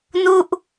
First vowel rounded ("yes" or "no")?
yes